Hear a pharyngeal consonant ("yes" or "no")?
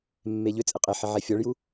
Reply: yes